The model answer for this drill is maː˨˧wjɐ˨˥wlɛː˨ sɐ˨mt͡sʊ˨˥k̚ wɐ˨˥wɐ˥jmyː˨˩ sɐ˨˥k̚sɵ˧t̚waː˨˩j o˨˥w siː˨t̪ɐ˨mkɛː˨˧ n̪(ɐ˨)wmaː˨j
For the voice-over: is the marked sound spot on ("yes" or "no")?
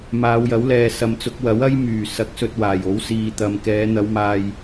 no